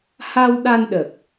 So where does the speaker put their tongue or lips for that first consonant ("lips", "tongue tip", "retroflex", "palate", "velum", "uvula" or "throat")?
throat